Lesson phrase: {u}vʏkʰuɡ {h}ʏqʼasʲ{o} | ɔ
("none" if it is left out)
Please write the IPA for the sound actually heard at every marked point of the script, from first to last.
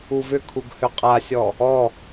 u, h, ɔ

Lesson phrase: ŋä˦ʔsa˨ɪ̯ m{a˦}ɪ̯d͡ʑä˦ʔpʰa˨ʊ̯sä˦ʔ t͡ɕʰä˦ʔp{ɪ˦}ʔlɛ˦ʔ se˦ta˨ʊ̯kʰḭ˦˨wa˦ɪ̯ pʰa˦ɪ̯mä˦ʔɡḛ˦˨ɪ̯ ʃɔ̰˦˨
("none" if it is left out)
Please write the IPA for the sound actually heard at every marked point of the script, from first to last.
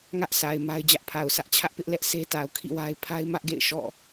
a˦, ɪ˦

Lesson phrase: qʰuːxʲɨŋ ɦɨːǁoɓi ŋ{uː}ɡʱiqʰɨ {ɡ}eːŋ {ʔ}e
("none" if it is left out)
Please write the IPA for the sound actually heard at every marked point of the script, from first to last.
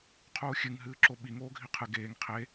oː, ɡ, qʰ

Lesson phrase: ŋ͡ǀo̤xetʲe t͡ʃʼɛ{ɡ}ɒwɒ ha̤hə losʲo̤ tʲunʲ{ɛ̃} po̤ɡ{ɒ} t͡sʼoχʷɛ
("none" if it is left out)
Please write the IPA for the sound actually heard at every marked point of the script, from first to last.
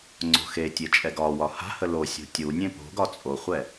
ɡ, ẽ, ɒ

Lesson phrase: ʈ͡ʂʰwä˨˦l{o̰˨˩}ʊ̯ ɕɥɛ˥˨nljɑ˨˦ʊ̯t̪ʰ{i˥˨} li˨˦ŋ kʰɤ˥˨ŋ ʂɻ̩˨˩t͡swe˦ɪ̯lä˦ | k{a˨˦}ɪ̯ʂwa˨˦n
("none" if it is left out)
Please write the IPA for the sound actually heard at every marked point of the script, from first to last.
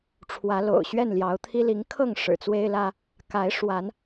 o̰˨˩, i˦, a˨˦

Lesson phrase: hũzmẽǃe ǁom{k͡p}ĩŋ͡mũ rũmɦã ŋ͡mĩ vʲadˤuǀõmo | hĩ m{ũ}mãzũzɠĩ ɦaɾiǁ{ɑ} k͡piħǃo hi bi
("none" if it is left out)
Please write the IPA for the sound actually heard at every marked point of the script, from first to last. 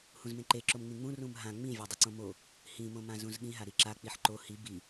ŋ͡m, õ, a

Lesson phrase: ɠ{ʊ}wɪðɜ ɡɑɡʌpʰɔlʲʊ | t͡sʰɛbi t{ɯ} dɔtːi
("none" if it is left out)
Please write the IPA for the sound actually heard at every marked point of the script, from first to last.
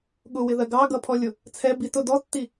ʊ, ʊ

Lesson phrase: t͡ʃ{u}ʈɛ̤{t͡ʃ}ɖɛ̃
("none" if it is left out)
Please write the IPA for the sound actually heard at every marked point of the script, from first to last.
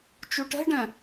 u, none

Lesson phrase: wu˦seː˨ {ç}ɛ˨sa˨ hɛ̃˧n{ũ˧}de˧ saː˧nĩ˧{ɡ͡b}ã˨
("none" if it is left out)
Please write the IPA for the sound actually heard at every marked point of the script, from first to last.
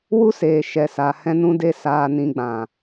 ʃ, ũ˧, ɡ͡b

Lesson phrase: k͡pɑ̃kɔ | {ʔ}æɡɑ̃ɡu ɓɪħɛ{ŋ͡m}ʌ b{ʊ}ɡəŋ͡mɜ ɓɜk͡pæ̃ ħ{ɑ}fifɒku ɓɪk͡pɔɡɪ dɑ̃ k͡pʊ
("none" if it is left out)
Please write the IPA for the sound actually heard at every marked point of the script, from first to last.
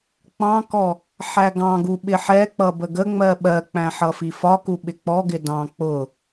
ħ, k͡p, ə, ʌ

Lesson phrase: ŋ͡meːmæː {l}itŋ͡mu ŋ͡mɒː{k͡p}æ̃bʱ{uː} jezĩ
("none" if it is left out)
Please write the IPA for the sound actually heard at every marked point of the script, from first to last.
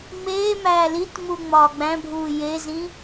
l, ɡ͡b, uː

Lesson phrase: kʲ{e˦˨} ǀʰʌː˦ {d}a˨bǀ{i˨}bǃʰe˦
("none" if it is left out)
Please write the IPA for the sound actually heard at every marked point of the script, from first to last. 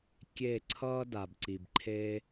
e˦˨, d, i˨

